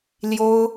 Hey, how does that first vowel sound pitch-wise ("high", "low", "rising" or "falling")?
high